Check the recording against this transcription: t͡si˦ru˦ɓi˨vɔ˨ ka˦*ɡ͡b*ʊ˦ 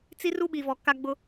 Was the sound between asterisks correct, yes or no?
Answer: yes